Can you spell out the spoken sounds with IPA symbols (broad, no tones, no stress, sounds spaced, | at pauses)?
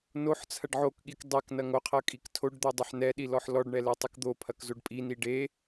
n o ħ t͡sʰ ɐ ɖ ʕ o k ɠ i k dˤ ɛ k n ɐ ŋ o qʰ ɐ kʼ i k tʰ o ɖ d̪ o dˤ ɐ ħ n ɛ ɗ i l ɔ ħ l ɔ ɖ ɳ ɛ l ɛ tˤ i k d̪ o pʰ ɐ k z o ɖ pʼ i n i ɖ e